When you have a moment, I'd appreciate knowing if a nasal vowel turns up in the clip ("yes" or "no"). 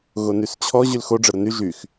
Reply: no